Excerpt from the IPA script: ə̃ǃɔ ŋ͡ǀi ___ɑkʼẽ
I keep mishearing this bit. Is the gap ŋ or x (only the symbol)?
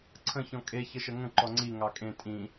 ŋ